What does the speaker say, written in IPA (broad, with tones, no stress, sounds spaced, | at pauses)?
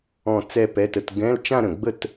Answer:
ɔ̃˥˧ t͡s ɛ˥˧ p ɛ˧˥˧ t ə˧˥˧ t ɡ ɛ̃˧˥˧ l t͡ʃ ã˥˧ ɾ ə̃˨˩ ɡ͡b ə˥˧ t